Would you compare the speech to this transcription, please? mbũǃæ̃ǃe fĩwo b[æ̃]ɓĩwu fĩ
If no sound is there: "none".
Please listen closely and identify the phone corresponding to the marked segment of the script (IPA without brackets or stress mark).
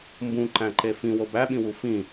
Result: æ